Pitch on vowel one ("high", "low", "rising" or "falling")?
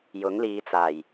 rising